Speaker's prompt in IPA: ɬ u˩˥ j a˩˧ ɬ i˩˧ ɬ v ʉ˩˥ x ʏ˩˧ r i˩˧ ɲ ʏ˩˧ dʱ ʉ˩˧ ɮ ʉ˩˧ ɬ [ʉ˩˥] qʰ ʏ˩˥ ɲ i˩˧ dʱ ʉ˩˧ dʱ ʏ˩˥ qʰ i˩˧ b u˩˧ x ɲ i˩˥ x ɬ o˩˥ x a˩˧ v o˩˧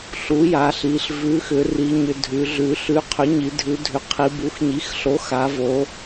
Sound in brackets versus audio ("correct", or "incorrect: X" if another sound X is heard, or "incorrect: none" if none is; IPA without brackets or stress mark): correct